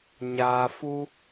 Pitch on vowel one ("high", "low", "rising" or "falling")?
low